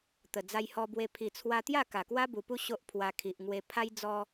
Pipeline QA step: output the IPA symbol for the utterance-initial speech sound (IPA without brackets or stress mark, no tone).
t̪